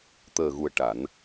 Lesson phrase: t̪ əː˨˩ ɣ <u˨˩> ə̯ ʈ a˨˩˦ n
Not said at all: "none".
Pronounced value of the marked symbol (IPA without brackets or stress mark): u˨˩